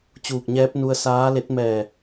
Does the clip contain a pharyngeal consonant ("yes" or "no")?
no